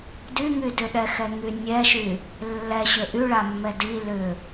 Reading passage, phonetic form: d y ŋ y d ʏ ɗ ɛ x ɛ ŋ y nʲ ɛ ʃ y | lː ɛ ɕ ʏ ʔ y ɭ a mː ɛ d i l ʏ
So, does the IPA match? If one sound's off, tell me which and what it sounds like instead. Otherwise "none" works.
none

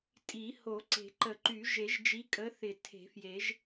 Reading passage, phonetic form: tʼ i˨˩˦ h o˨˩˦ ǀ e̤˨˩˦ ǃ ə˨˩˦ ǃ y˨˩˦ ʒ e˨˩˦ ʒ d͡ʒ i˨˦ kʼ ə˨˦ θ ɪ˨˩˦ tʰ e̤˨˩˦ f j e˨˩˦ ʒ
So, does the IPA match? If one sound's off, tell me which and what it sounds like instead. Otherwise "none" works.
none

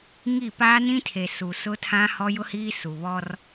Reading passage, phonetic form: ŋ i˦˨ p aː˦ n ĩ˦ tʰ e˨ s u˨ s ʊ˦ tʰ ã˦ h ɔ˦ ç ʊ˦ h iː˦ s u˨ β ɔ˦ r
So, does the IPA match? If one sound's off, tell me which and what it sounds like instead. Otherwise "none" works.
ç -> j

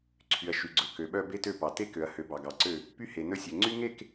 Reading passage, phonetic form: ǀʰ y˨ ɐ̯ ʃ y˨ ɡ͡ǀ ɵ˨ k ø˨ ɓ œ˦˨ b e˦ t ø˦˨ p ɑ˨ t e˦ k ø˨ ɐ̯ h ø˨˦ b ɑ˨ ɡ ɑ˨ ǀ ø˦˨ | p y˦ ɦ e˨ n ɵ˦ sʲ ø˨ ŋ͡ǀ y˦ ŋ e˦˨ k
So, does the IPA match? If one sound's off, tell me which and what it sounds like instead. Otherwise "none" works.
ɦ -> h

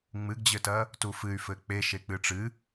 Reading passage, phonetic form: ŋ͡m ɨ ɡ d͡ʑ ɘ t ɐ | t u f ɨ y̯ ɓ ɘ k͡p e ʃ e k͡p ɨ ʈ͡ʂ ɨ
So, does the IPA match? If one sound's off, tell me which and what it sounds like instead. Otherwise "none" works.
ɓ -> f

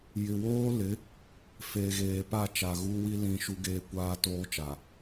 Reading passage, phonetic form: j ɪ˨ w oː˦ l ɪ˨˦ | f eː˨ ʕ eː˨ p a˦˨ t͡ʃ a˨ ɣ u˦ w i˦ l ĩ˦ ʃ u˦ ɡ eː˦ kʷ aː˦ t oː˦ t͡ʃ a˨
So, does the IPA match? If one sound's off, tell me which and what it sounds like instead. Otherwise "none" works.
ʕ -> ɣ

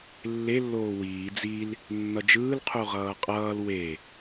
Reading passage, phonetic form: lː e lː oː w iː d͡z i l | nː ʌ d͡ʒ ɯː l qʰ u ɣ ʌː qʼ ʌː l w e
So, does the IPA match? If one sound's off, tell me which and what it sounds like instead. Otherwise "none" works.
ɣ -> ʁ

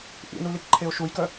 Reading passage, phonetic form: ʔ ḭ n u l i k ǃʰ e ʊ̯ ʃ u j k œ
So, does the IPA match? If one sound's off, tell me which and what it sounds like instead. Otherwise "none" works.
none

